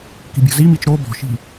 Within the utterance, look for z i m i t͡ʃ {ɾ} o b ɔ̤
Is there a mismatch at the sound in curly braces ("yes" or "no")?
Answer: no